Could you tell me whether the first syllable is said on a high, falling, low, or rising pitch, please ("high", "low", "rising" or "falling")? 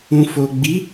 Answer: low